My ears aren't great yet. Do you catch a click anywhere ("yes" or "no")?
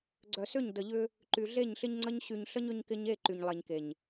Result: yes